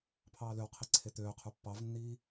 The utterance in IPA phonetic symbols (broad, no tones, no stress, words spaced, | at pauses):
pʰɑːløwqʰi ǀʰet̪øːqʰu pːɑvnːiː